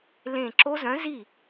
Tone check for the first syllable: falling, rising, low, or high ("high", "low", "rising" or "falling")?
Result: falling